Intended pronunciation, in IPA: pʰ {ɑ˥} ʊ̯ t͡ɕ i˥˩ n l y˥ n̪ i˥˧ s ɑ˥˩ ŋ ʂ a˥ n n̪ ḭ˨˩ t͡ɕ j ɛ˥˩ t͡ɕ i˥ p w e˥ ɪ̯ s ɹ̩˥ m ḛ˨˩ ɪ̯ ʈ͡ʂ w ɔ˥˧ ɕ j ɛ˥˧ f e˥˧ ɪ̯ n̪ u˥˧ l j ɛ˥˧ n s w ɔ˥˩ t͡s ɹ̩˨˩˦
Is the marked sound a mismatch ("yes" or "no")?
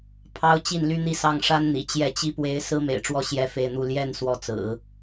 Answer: no